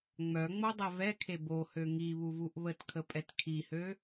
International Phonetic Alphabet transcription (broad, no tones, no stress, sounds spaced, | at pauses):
ŋ͡m œ ŋ͡m o dˤ ɛ v ɛ kʰ e b o h ø ŋ i β u v u ʔ β ə t kʰ ə pʼ ɛ t kʰ i h ø